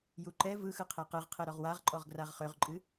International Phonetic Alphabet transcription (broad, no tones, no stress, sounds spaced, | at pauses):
j u ǃ ɛ v ɯ x ɯ qʰ e q ɨ ʁ qʰ e ɾ ɔ ʁ w a ʁ ǃʼ ɔ ʁ ɡ r a ʁ χ ø ʁ ǃʼ ɨ